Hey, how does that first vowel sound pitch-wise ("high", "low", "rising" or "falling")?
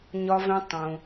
high